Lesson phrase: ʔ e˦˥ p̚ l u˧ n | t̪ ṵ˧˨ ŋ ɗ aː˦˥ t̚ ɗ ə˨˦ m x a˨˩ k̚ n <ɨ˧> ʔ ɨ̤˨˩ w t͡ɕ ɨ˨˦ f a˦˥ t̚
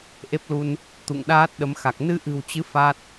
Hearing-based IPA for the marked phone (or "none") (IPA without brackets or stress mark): ɨ˧